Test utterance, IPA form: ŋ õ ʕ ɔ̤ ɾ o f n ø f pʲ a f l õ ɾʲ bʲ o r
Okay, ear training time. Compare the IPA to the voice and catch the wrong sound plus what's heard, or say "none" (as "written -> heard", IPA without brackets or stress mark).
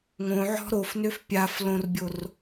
ɾʲ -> r